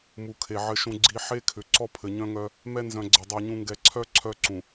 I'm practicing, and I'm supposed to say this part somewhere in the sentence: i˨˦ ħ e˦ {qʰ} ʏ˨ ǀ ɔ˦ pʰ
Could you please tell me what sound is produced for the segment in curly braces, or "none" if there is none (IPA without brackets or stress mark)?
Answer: kʰ